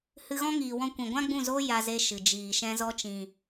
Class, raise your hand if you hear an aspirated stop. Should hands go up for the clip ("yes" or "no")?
no